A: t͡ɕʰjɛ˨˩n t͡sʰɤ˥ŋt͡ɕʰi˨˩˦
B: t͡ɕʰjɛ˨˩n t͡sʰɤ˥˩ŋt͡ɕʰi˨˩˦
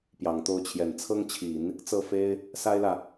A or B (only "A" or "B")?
A